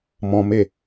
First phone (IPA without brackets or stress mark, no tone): m